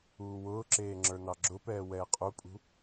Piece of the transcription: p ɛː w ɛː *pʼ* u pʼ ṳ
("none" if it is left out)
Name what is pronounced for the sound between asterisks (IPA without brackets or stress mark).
qʼ